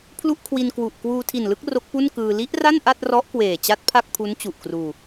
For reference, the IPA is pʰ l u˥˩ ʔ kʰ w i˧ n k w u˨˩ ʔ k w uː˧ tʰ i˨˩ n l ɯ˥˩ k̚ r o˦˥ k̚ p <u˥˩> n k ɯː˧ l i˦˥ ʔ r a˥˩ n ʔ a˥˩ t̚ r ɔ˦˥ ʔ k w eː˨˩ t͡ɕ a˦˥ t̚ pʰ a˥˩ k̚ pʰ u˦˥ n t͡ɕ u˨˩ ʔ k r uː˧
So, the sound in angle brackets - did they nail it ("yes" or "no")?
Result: yes